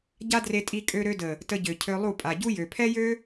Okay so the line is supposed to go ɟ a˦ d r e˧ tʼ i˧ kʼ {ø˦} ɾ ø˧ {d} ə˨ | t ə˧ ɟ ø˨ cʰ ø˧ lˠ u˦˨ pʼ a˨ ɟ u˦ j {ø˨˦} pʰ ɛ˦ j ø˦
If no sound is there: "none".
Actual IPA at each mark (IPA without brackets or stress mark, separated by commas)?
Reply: ø˧, d, ø˨